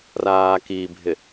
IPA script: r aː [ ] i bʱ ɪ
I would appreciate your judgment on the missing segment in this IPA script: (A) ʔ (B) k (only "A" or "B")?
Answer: B